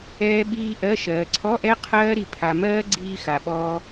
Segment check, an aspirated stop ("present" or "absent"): present